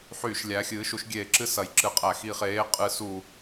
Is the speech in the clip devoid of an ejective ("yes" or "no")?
no